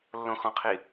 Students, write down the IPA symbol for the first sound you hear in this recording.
lː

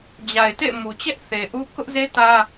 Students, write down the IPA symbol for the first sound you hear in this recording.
d͡ʑ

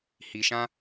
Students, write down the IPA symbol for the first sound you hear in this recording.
h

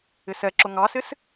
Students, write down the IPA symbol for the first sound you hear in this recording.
ɪ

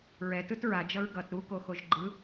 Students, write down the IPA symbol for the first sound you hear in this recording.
ɹ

